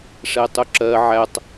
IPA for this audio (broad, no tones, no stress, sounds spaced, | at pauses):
ʂ ɛ tˤ ʊ ǁ ɜ ʕ æ tˤ